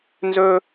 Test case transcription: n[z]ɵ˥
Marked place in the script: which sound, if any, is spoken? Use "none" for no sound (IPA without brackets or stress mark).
z